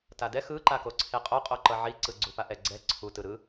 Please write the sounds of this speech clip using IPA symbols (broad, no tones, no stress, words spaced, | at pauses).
tadɛ xɯǃako ǀʰeqʼoqʼoǃʌ ʕiǀɯ ɡ͡ǀupaʔɛ ɡ͡ǀɛ ǀʰutɯ ɾɯ